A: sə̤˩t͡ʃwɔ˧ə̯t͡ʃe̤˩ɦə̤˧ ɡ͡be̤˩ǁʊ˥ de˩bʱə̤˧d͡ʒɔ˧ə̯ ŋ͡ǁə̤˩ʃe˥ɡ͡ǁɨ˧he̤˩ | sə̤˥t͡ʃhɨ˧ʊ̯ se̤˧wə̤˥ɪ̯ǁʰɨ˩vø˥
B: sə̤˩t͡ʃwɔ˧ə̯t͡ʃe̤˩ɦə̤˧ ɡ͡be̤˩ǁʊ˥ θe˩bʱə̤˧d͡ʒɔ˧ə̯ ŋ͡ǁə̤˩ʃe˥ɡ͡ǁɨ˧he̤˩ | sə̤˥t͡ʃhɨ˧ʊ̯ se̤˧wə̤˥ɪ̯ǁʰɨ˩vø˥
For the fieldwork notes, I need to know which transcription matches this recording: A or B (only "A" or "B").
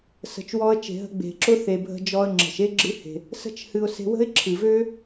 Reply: B